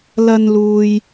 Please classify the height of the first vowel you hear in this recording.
low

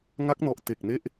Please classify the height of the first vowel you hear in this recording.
low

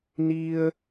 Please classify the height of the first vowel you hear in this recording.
high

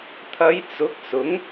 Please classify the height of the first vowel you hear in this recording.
low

